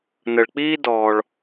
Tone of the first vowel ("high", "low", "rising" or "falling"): low